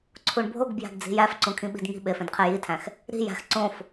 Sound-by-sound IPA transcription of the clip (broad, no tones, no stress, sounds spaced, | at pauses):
ǀʰ u ɳ bʱ o ɡ b j æ̤ ɡ d͡z i̤ j æ f ǀ ũ kʰ ĩ ɓ i̤ d ŋ i̤ ɓ e f ẽ d qʰ e j i tʰ æ̃ x | ɾ i̤ j æ̤ x ǀ õ f